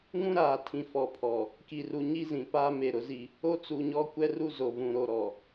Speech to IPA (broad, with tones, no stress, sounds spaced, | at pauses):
ŋ ũ˦ ɾ aː˨ tʰ ĩ˨ f ɔ˨ pʰ ɔ˨ | k i˨ r u˨ ɲ i˦ z ĩ˨ p aː˦ m e˨ ɾ ʊ˨˦ z i˦ | o˦ t͡s u˨ ɲ ɔ˦ kʷ ɛ˦ r u˦ z o˨ v ũ˨ ɾ o˨ ɾ ɔ˨